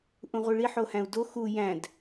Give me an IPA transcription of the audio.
ʔ ũ ʁʷ i ɭ i ħ o h æ̃ u̯ d o x u j æ̃ d

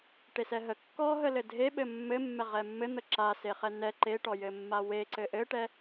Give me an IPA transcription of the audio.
ʈ e s ɛ ɦ ə kː ɔ ɦ ə l ɘ dʱ e ɓ ɘ mː ɘ mː ɛ ʁ ɛ mː ɘ n̪ ə ǁ a s e χ ɛ n ɛ ǃ e ʈ ɔ j ɘ mː a w e ǀ ɘ ʔ ɘ ʈ ɛ

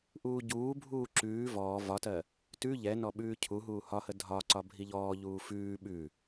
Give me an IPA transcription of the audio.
ʔ uː ɟ uː bʱ uː ǁ ʉː v ɔː v ɒ t ɜ | t ʉ ʎ ɛ n ɔ ɓ ʉː cʰ u ɦ uː h ɒ h ə dʱ ɒ ǀ ɒ bʱ i ʎ ɔː ʎ uː f ʉː ɓ ʉ

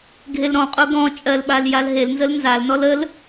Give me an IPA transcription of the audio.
ɡʱ e l ɾ ɔ̃ qʼ o ɡ ɔ̃ t͡ʃʼ ɜ l ɓ a l j a l ɦ e l n z ə l n z a l n ɔ l ə l

